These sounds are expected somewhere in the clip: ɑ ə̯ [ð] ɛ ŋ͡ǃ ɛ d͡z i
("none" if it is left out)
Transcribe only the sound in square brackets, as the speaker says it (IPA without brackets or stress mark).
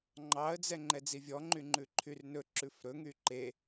d͡z